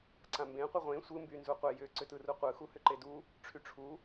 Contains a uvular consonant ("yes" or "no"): yes